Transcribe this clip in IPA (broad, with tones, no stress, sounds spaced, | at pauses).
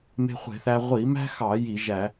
m e̤˧ χʷ e̤˧˩˧ θ æ˧ ʁʷ i˧˩˧ m æ̤˥ x ɑ˧˩˧ j i˧˩˧ ʒ æ˧˩˧